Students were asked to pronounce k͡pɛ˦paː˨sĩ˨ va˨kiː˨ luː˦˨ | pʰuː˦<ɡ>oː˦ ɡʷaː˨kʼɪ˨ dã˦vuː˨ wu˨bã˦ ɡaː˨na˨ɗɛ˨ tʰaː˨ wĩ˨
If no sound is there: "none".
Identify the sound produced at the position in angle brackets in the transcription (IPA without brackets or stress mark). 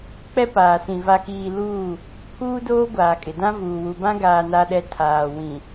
d